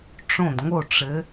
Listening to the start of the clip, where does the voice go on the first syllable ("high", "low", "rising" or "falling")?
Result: falling